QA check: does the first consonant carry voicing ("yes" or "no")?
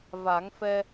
yes